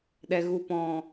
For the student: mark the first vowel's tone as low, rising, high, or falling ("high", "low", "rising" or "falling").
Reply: low